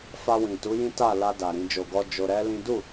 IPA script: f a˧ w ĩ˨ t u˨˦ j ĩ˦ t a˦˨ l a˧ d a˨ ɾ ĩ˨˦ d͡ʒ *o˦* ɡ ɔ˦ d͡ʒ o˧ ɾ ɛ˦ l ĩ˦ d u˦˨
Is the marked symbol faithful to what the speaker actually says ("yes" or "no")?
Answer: no